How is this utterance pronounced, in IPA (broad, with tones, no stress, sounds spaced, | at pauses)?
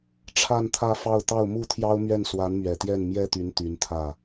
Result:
ʈ͡ʂʰ a˥˧ n t̪ʰ ä˥˧ f ɑ˥˧ ʊ̯ t̪ ɑ˥˩ ʊ̯ m u˥ t̪ʰ j ɑ˥ ʊ̯ m ɥ ɛ˥˩ n s w a˧˥ n m ɥ ɛ˨˩ t̪ j ɛ˥˩ n m j ɛ˥ t̪ y˧˥ n t̪ y˧˥ n t̪ʰ ä˥˩